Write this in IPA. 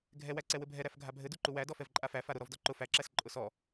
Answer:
ɡʱɛwæǀɛ wɘbʱɛɾæf ɡʱabʱɘ duǃuwæ dɔfɛvǃʼafæ faɾʊ ɾɔvdɔǃʊ fæǁæs ǃʼʊsɔ

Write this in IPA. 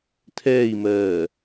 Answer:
tʰɛːi̯mɜː

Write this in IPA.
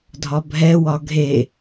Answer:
dʱɒbʱɛwɒ ɡʱe

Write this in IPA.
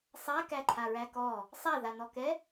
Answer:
sˤa kæǃʰaɹækɔ | sˤaðanɔkɛ

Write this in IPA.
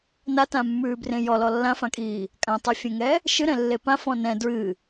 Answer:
natãmːʉːbrẽ jɔlɔ lːãfãkʼiː | kʼãtˤʉfʲẽŋɛ | ʃɨɾɛ̃lːe pãfɔ̃ nɛ̃ dɹɨ

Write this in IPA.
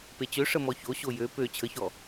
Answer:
pet͡ɕø ʂəmɔço ɕojø pø t͡ɕʰəçɔ

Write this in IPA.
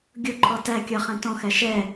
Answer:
ɡʲʊǃʰɔ tæ kʲʌχɛ̃ tɔ̃xæ ʃɛ

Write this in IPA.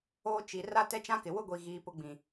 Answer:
oː˦t͡ʃi˨ ra˦tɛ˦t͡ʃã˦kɪ˨ wʊ˦ɡʷi˨ɣiː˨ pʊ˦ɡ͡bĩ˨

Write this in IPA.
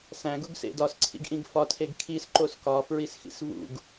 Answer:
sæ̃ ɡuɡsḛdɒs ǀʰḭɡʔĩɡfɒ tʰeɡkʰis ǃoskɒ fɹisxḭsvṵɡ

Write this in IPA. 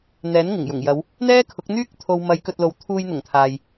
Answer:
n̪ɛː˨˥n ŋɪ˨˩ŋjʊ˨˩ŋjɐ˨˧w | n̪ɛː˥kʰʊ˨˥k̚n̪yː˥k̚ t̪ʰo˧w mɐ˨˧j kɵ˧t̚lo˨˧w t̪ʰuː˧jn̪ʊ˨˩ŋ t̪ʰaː˨j

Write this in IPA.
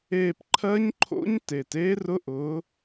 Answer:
eː˥˧p ǃʰɜ˦˥ɲǃʰo̰˦˥ɲ teː˨˩teː˦˥rʊ˦˥ʔʊː˨˦

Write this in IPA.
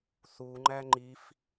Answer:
θuŋ͡ǃæ ŋ͡ǃif

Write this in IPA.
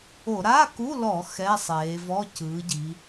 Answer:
o˧˩˧ ɾa˧˥˧ku˧˥˧lɔ˧˩˧ xɛ˧˥˧sˤeː˩˧vɔ˧˥˧ cɯː˩˧ɟi˩˧

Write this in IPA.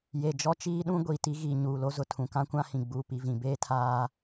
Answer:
je˨d͡ʒɔ˦t͡ʃiː˦ɗũ˦ ɡʷiː˨ti˦ ɣiː˨ɲuː˨lo˦zʊ˨ tʰũ˨kã˦kʷã˦hĩ˨ ɡ͡buː˨pi˨vĩ˨ beː˦tʰaː˦

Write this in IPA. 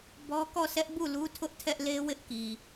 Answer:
bɔ˦ kɔ˦˨sʰɛ˦ʔ bu˦˨lu˦tʰʊ˦ʔ tʰɛ˦ʔle˦wɪ˦ʔki˨

